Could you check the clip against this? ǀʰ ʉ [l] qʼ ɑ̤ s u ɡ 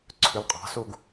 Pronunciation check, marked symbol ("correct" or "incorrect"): correct